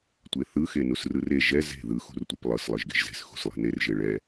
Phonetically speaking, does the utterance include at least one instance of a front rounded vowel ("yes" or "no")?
no